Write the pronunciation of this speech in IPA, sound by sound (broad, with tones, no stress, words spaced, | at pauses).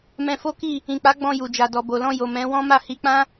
mɛ̃˧fo˦ki˦˨ | ĩ˨k͡pa˨˦ ɡ͡bɔ̃˧ju˨d͡ʒa˨dɔ˨ bo˨lɔ̃˧ jo˨ mɛ̃˨˦ wɔ̃˦ ma˦˨hi˨˦k͡pã˦